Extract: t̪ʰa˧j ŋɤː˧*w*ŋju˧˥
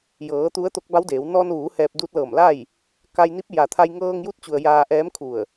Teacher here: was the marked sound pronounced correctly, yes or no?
no